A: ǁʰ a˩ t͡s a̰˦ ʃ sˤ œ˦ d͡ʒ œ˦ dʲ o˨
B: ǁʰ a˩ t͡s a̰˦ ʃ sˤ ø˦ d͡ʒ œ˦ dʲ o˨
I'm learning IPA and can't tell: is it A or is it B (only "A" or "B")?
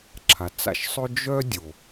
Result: B